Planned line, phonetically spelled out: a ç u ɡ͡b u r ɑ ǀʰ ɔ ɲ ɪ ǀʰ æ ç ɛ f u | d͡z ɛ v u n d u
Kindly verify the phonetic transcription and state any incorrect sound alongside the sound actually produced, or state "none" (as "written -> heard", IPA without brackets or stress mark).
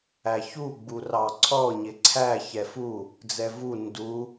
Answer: a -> æ